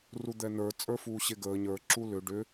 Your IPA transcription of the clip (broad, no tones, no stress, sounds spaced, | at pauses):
r u d̪ ɛ n ə˞ t͡sʼ ə˞ f uː ɕ e ɡ əː ɲ ə˞ ǁ u l ʏ ɖ ʏ